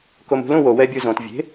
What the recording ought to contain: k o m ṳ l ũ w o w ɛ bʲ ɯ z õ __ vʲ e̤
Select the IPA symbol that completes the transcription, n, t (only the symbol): t